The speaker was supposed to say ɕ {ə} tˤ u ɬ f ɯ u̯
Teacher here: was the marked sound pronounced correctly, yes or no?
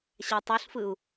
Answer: no